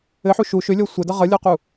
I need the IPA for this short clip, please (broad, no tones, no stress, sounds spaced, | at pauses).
ɘ ħ u ʃ u ʃ ʏ lʲ ɔ sʷ ə d ʌ ʁ ʌ lʲ ɔ q u